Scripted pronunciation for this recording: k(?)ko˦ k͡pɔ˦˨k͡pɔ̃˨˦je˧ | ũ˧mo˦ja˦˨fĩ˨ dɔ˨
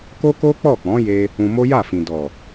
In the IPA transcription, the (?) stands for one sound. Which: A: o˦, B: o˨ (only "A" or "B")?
A